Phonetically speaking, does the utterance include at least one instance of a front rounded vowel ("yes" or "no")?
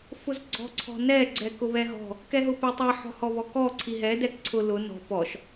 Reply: no